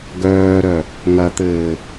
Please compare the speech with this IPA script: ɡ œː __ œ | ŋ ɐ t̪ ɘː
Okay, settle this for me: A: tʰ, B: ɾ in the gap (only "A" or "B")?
B